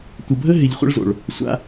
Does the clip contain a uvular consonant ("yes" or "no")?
yes